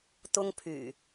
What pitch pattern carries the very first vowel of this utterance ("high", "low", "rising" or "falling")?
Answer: high